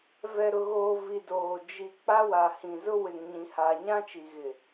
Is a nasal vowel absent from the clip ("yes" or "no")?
no